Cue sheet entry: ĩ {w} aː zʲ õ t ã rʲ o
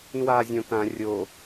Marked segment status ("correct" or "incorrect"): correct